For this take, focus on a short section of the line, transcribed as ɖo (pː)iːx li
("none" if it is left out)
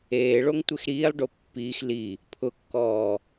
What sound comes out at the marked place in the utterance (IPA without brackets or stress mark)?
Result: pː